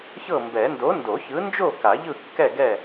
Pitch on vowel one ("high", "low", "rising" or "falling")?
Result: falling